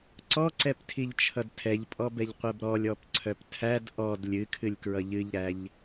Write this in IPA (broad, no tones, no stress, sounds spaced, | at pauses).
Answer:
ǀ ɔ ǀ ɛ p tʰ i ʎ t͡ʃʰ ʌ d tʰ ɛ ʎ pʼ ɔ b ɛ ʎ qʷ ɛ b ɾ ɔ lʲ ɔ p ǀʰ œ p tʰ æ d ʔ ɔ d lʲ ɨ kʰ ɨ lʲ k ɹ ʌ ʎ ɨ ʎ ɾ æ ʎ